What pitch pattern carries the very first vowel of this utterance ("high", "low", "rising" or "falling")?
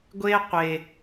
high